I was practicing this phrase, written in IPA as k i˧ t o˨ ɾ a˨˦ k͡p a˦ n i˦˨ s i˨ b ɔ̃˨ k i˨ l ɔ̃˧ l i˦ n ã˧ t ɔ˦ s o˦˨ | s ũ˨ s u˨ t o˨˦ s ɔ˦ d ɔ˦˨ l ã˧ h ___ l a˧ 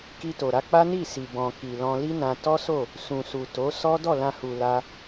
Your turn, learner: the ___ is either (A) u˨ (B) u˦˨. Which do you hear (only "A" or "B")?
A